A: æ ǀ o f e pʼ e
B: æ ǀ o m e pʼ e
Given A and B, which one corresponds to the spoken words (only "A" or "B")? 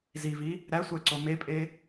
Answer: B